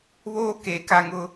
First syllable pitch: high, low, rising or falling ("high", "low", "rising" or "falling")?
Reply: high